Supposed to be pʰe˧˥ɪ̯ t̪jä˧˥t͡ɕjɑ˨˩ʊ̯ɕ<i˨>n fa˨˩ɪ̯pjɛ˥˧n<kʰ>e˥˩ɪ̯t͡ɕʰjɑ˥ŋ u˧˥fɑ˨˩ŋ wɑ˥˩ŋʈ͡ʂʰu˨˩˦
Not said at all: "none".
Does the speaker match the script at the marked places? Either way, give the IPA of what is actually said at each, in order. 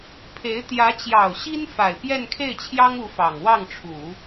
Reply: i˥, kʰ

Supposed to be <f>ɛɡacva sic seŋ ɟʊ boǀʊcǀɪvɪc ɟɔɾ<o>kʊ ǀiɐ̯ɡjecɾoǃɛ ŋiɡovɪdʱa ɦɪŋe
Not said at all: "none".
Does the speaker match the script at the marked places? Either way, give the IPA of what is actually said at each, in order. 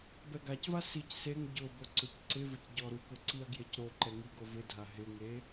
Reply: b, u

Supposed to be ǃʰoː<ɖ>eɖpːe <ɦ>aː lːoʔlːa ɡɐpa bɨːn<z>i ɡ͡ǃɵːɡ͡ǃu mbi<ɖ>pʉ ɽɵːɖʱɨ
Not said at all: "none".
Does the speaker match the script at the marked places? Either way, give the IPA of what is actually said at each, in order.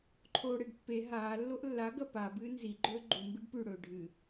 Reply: ɽ, ɦ, z, ɖ

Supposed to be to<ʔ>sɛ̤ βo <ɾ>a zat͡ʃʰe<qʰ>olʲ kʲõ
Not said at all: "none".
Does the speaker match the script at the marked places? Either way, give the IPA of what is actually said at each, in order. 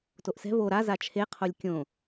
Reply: ʔ, ɾ, qʰ

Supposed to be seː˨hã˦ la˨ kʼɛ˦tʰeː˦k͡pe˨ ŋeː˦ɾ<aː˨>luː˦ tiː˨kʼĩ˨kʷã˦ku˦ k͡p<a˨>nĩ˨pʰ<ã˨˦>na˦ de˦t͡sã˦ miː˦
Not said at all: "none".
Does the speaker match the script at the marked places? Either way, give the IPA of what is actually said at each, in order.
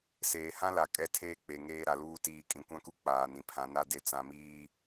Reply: a˨, aː˨, ã˨˦

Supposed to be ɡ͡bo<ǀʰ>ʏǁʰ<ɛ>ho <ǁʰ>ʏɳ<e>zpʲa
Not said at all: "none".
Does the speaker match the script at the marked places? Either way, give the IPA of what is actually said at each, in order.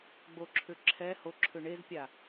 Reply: ǁʰ, ɛ, ǁʰ, e

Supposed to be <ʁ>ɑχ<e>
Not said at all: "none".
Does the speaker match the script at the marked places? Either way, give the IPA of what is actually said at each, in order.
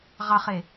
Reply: ʁ, e

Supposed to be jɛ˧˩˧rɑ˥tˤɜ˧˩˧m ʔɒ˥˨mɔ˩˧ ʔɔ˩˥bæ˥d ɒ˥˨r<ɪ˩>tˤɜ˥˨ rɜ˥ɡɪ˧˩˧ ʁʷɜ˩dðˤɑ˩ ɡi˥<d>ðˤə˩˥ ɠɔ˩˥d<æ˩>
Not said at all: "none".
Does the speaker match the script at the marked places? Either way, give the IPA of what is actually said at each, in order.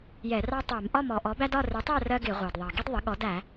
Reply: ɪ˩˥, d, æ˧˩˧

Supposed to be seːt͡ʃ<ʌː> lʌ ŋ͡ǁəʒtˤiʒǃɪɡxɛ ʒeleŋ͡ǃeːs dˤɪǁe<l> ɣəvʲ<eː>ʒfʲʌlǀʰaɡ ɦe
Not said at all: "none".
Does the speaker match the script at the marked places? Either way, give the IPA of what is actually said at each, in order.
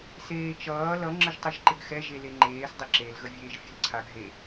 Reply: ʌː, l, eː

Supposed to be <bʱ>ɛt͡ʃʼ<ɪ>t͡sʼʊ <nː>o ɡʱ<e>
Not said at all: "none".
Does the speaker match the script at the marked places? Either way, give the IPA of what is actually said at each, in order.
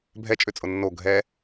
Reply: bʱ, ʏ, nː, ɛ

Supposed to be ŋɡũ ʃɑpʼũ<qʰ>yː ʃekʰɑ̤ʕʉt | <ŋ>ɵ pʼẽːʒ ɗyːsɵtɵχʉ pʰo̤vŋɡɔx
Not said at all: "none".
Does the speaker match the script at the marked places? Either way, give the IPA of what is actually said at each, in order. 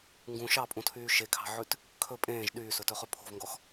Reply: tʰ, kʰ

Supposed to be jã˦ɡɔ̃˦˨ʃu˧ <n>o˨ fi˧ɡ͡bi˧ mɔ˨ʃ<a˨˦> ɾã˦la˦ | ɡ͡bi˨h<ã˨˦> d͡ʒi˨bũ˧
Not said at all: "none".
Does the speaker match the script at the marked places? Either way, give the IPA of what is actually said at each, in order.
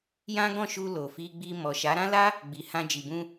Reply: l, a˨˦, ã˧

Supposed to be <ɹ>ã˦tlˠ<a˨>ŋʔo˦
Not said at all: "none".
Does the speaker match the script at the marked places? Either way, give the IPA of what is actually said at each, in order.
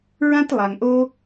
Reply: ɹ, a˨

